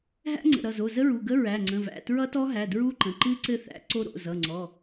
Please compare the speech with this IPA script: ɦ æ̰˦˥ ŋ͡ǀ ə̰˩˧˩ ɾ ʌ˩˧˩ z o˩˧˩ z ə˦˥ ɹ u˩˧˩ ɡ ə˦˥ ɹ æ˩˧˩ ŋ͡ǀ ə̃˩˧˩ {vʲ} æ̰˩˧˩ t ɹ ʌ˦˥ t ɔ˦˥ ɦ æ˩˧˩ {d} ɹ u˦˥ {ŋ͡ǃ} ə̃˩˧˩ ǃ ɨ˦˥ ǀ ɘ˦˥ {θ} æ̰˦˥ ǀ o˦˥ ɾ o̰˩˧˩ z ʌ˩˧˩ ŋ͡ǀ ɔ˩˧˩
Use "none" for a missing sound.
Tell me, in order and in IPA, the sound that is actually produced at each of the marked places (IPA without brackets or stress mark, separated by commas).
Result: v, d, ǃ, θ